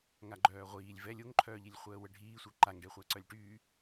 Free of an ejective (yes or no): yes